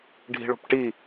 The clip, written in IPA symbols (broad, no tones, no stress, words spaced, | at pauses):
ɖʱi̤ɭo̤pʈi